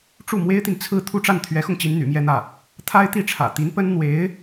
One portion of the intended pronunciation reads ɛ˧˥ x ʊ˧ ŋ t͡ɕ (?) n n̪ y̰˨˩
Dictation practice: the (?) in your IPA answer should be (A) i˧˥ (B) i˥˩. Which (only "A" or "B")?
A